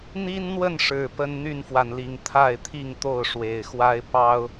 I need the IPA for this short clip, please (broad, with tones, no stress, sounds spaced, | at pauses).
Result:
n̪ i˦ n n̪ w ə˥˨ n ʂ ɻ̩˨˩ p ə˦ n n̪ y˥˨ n f w a˩ n l i˨˩ ŋ t̪ʰ a˥˨ ɪ̯ t̪ʰ i˥˨ ŋ t̪ o˥˨ ʊ̯ ʂ w e˨˩ ɪ̯ x w a˦ ɪ̯ p ɑ˦ ʊ̯